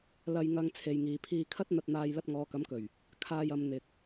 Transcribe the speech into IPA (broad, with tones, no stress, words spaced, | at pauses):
lɐ˧jŋɐ˧ŋ t͡sʰe˨jŋiː˨pʰiː˧kʰɐ˥t̚ n̪ɐ˧t̚n̪aː˧j lɐ˧t̚ŋɔː˨˧kɐ˨˥mkɵ˨˩ɥ | kʰaː˧jɐ˨˧m n̪ɪ˨k̚